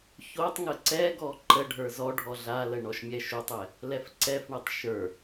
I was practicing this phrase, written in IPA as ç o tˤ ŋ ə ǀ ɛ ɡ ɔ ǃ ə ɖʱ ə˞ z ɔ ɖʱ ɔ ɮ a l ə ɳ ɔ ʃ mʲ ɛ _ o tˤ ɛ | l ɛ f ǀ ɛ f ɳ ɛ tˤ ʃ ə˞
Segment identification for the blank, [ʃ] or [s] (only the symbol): ʃ